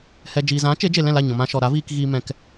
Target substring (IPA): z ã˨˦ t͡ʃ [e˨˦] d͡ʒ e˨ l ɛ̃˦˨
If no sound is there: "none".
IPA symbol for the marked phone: e˨˦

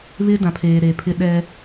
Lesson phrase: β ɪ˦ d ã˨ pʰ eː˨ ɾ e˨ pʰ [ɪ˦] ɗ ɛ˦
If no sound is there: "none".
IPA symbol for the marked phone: ɪ˦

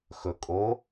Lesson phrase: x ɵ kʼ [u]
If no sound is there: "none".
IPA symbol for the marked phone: o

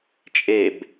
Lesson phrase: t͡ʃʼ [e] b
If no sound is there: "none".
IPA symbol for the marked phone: e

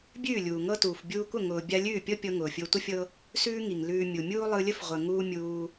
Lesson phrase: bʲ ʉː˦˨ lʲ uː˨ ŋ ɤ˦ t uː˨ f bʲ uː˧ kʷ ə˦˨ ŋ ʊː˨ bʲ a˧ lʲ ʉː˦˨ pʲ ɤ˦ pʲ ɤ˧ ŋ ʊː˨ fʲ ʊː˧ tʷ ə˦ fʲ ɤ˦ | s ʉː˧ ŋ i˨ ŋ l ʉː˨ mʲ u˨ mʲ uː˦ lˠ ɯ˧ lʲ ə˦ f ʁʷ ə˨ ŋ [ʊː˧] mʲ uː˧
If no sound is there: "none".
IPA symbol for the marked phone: uː˧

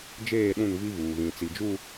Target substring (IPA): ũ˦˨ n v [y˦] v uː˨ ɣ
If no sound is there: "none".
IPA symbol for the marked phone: i˦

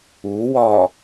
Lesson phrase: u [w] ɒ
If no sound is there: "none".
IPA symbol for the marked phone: w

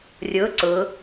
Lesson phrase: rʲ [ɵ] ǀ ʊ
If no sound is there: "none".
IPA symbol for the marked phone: ʊ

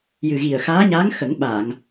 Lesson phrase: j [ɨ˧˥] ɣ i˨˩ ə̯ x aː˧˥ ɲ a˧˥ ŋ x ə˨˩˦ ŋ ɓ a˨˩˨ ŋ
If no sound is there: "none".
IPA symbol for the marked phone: ɨ˨˩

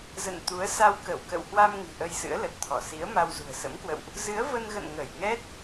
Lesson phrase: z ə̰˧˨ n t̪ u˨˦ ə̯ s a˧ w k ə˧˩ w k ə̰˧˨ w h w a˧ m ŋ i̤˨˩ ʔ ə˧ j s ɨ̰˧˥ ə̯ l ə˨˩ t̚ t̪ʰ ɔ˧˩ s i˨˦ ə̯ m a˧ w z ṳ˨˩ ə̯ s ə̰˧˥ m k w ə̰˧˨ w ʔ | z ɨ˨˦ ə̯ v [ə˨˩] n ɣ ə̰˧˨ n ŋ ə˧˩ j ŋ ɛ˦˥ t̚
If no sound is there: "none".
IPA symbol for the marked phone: ə˧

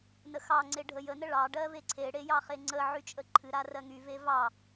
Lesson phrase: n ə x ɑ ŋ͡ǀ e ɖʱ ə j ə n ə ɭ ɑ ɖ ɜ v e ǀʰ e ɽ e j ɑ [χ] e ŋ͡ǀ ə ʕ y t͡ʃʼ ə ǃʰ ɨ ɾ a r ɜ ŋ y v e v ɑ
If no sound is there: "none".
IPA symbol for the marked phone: χ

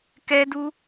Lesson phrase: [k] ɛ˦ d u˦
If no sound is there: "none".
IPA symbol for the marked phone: k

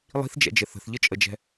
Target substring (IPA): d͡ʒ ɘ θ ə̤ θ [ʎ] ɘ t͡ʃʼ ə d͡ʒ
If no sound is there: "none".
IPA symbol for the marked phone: ʎ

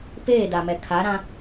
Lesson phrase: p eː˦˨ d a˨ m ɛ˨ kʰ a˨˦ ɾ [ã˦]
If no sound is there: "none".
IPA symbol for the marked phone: ã˦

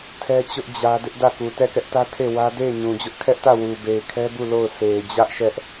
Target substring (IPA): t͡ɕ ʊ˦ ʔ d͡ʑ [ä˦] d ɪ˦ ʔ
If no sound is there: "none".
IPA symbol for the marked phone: ä˦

